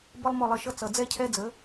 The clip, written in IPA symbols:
b ə˦ lˠ m ʊ˦˨ lˠ ə˦˨ ʃ ʌ˦ t͡s ʌ˨ d͡z ɛ˦ cʰ ɛ˦ d͡z ə˨˦

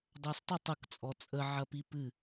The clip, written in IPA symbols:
dˤ a s tˤ ə tˤ ə k t͡sʼ ɔ t͡sʼ ə ʕ ɐ p i p ɨ

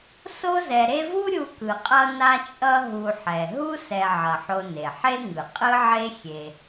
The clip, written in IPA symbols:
s o˦ z ɛ˨ ɾ e˦ v u˥ ɾʲ u˦ k ɯ˨ qʼ ʌ˥ n a˦ t͡ʃʼ ʌ˦ ɦ u˨ ħ ɛ˩ ɦ u˥ s ɛ˨ ʕ ʌ˩ ħ o˨ n e˩ ħ e˥ ŋ ɯ˩ qʼ ɯ˦ ʕ e˦ xʲ e˨

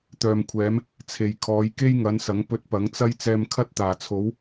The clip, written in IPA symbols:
t̪ œː˨ m kʷʰ ɛː˨˧ m | t͡sʰ e˨ j kʰ ɔː˨˧ j k e˥ j ŋ ɐ˨˧ n s ɐ˨˥ ŋ p ɵ˧ t̚ p ɐ˨˥ ŋ t͡s ɐ˥ j t͡s ɛː˧ m kʰ ɐ˥ t̚ t̪ aː˨˩ t͡sʰ o˨˥ w

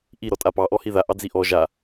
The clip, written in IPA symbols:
ʔ i ɾ ɔ tʼ a p ɑ ʔ ɔ h i ð a ʔ ɑ d͡z i ʔ ɔ ʒ a

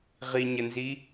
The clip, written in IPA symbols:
ʁ i ɲ ə n z i

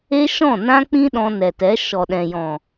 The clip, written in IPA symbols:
e˦ ʃ ɔ̃˦˨ n ã˦ k͡p ĩ˦ ɗ ɔ̃˧ n ɛ˨ t ɛ˨˦ ʃ ɔ˨ ɗ ɛ̃˨ j ɔ̃˨

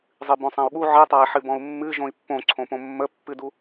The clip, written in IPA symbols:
zˤ ɨ b õ sˤ ã u̯ ɠ u ʕ ɨ tˤ a i̯ ħ ɨ b ɔ̃ u̯ mː ɨ ʒ õ i̯ pː õ ǀʰ õ p õ mː ə pː ɨ d u

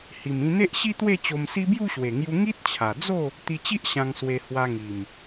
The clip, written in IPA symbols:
h i˨˩ m ĩ˧ n̪ e˦ ʔ ɕ i˦ t̪ w e˥˧ t͡ɕ o˧ m s i˦ b j u˥˧ ɕ w e˨˩ ŋ j u˧ ŋ i˦ t̚ t͡ɕʰ a˨˩ d͡z o˥˧ | t̪ i˧ t͡ɕ i˦ ʔ ɕ ã˧ ŋ s w e˧ h w a˧ ŋ i˨˩ m

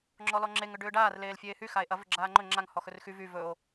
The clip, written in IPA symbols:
ŋ͡ǁ ɔ l ɔ ŋ͡ǁ e ŋ ʏ ɖ ʏː ɖ aː r l eː l fʲ eː h y x a e̯ ʔ ɐ v ʏ ɡ͡ǁ aː ŋ͡ǃ ɵ ŋ͡ǁ a ŋ h ɔ x ɵ r x y v y v ɵ o̯

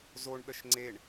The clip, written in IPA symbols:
z o ɳ ɗ ə ʃ ŋ͡ǀ e ɳ

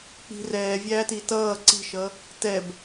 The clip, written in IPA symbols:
k͡p i̤ r ɛː vʲ æː t i t ʌː ǀ i̤ ʃ ʌ | t ɛ b

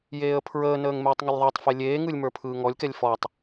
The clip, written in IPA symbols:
j eː ə̯ pʰ ɹ əː n əː ŋ m eː tˤ ŋ ʏ lʲ ðˤ ə˞ tˤ f e lʲ eː ŋ ɯ lʲ m ə˞ pʰ ɯː ŋ ɔ lʲ k ɛ lʲ f ɔ tˤ

